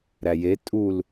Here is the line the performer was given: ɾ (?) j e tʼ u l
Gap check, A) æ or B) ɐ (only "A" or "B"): A